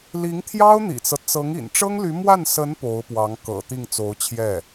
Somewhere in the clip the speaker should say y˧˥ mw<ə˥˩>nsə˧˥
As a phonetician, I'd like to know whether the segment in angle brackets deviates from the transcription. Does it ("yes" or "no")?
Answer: yes